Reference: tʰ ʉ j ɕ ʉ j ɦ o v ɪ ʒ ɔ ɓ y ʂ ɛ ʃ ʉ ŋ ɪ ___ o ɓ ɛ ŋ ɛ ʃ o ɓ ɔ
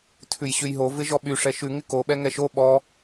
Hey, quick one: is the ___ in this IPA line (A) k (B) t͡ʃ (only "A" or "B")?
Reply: A